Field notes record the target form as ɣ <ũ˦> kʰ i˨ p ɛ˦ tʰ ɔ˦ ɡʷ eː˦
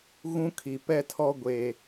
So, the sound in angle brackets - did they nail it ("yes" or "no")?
yes